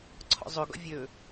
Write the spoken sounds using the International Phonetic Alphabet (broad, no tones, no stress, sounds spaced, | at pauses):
ǀʰ ɔ̰ zˤ ɵ ɡ ɔ̰ vʲ ɵ